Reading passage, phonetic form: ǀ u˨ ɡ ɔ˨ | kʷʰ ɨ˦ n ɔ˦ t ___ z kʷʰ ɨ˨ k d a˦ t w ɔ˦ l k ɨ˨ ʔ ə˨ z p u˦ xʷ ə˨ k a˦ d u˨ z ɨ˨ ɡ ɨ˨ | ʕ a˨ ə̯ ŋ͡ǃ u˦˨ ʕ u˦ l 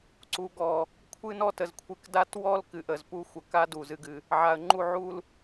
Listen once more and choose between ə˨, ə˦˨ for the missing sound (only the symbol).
ə˨